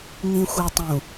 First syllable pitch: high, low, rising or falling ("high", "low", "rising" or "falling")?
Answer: low